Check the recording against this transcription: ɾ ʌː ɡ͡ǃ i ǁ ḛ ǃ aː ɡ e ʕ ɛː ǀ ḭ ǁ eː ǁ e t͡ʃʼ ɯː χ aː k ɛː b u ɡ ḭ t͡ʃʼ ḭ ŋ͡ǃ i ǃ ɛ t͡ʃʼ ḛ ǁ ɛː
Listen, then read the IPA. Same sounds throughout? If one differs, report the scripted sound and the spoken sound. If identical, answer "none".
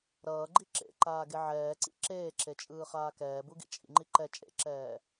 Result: none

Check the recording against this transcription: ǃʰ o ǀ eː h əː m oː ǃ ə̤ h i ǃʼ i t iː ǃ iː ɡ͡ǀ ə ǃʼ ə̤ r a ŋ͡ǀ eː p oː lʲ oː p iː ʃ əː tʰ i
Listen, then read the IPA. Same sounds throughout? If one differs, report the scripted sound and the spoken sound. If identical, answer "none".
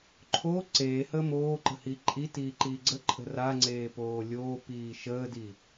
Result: tʰ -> d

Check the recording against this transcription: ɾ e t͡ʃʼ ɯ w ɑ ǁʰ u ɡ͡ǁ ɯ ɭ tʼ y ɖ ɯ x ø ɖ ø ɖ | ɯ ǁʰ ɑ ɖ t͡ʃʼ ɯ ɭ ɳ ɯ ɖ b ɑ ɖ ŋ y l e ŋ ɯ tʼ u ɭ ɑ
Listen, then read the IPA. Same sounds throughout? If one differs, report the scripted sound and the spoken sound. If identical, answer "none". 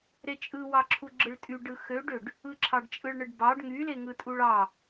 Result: none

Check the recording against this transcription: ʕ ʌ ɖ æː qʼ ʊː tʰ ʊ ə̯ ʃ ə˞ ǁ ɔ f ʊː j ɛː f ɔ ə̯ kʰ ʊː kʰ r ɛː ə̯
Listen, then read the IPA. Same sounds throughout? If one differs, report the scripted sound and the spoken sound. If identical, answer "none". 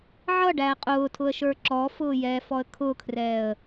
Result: none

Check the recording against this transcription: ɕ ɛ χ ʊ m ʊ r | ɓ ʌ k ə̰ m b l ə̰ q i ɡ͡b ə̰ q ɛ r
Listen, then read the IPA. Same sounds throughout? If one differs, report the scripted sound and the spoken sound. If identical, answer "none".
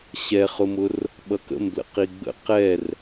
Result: none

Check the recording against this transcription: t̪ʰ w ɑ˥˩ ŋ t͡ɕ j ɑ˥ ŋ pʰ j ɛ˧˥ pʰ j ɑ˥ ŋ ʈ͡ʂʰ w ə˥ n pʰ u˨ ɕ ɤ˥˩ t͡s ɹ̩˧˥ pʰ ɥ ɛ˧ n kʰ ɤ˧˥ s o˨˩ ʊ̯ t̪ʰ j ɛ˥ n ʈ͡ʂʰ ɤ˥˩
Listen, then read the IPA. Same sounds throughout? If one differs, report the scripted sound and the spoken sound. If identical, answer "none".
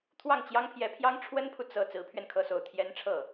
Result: ɕ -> t͡s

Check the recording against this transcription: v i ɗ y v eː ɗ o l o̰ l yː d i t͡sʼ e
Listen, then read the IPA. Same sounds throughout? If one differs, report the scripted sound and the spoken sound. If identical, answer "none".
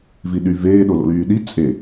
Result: d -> ɗ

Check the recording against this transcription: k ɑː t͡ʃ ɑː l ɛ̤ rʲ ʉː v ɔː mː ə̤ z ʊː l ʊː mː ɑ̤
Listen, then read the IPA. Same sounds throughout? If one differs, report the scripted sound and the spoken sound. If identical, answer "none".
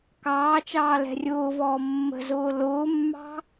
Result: ʉː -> ʊː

